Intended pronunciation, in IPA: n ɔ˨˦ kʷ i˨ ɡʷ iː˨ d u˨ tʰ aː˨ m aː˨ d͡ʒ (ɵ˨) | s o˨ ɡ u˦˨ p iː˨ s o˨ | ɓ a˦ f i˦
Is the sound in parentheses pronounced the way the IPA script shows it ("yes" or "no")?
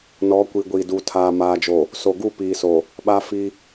no